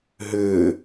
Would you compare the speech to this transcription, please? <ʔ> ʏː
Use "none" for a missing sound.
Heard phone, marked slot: ɦ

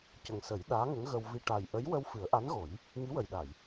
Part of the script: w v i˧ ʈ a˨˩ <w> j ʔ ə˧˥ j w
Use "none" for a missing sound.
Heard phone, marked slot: none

